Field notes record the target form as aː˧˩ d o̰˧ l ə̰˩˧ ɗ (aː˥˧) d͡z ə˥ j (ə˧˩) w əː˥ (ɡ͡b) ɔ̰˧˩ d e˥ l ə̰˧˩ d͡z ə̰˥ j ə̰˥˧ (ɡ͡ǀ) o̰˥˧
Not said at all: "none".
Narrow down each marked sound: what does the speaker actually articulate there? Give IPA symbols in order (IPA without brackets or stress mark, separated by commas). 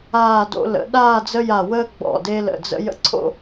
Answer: aː˥˧, a˧˩, ɡ͡b, ǀʰ